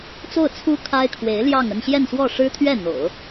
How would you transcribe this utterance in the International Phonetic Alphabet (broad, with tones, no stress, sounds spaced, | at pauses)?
t͡s o˥˩ ʊ̯ t͡sʰ u˥ kʰ a˥ ɪ̯ kʰ w e˧˥ ɪ̯ l j ɑ˥˧ ŋ ə˥˧ n ɕ j ɛ˥˧ n s w ɔ˥˩ ʂ ɻ̩˥ t̪ʰ ɥ ɛ˥˩ n̪ o̰˨˩˦ ʊ̯